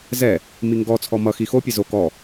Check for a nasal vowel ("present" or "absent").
absent